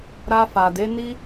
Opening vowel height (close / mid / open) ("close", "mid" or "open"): open